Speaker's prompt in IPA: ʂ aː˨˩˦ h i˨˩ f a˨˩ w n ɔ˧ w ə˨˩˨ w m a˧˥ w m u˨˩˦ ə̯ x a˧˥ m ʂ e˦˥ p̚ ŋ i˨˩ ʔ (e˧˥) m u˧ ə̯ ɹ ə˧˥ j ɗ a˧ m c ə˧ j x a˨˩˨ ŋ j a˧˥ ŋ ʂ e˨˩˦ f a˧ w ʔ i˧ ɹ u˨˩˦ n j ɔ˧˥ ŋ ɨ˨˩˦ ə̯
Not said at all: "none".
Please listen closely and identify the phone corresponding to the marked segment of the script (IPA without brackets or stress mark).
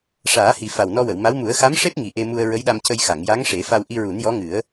e˧